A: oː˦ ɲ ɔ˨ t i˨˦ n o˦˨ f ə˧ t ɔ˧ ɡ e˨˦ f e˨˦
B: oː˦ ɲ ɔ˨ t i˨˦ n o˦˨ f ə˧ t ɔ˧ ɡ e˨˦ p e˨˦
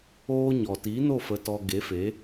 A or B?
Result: A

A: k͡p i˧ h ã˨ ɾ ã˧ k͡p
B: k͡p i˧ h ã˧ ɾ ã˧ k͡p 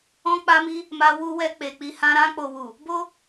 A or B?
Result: B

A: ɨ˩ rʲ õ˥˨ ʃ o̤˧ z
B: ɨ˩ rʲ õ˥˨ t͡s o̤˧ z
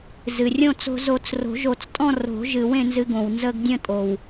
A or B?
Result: B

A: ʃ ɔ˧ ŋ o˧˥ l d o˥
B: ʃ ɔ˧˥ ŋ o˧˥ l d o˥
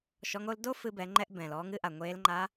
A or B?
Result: B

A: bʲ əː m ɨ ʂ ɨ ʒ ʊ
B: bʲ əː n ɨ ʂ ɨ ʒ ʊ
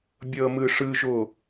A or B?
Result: A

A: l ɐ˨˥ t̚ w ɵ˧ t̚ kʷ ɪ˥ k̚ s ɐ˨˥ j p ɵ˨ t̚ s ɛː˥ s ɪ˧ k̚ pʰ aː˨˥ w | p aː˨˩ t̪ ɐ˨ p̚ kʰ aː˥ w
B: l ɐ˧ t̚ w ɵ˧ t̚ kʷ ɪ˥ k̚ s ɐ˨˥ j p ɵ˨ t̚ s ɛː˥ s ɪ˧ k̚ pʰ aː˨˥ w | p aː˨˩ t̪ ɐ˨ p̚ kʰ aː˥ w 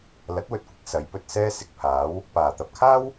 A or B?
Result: A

